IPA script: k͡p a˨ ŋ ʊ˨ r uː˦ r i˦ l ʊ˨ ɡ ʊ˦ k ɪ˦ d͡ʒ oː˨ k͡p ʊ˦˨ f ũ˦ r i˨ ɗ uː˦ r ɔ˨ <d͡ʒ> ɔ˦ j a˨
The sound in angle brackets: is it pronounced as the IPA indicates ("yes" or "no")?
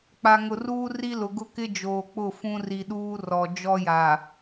yes